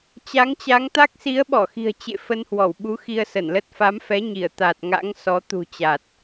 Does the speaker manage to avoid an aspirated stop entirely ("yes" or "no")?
yes